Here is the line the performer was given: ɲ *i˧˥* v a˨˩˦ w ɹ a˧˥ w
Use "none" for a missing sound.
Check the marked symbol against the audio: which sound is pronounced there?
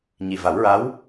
i˨˩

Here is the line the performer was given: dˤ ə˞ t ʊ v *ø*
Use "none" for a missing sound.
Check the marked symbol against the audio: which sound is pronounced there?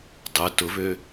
ø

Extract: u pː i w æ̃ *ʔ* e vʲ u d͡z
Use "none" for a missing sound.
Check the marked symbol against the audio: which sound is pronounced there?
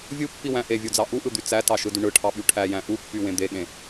ʔ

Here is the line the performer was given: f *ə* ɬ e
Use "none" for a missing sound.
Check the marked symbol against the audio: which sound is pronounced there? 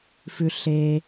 ʉ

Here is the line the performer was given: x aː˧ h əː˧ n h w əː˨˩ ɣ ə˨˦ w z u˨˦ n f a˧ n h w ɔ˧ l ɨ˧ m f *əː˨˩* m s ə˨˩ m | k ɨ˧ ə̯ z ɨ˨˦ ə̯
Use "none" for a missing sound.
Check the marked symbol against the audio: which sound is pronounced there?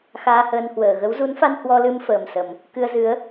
əː˨˩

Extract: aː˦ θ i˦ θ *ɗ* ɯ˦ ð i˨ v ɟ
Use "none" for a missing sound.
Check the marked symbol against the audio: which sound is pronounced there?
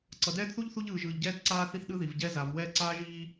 ɗ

